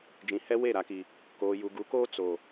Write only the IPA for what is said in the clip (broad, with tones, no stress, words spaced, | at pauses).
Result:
d͡ʒĩ˨hɛ˦ we˦˨ɾa˨ki˨ | koː˨ju˨ ɡu˨˦koː˦ t͡so˨